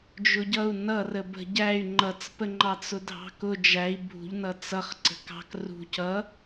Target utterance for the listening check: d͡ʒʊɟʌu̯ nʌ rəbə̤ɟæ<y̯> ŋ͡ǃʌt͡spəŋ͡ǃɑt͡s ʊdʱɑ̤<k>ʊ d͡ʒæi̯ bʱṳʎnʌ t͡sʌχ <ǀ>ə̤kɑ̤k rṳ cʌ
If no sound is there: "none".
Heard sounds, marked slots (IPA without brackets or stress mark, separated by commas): y̯, k, ǀ